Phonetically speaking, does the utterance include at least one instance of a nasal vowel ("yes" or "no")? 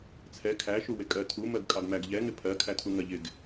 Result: no